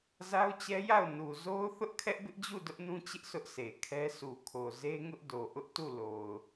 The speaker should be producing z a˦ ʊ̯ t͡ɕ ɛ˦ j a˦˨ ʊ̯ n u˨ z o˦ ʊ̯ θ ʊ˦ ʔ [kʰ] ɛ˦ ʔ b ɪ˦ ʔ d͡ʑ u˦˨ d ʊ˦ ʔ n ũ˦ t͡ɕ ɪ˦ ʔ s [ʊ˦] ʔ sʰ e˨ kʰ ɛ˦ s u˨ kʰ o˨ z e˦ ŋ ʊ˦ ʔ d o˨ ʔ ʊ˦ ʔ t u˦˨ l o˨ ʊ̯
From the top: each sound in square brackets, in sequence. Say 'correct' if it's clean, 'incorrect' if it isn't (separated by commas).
correct, correct